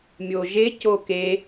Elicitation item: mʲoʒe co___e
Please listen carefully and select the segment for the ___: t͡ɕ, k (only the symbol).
k